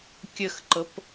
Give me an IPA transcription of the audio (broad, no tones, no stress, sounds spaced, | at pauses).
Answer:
kʲ ə x ǃ ɤ p